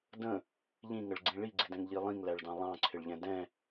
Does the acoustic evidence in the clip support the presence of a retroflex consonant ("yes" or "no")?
yes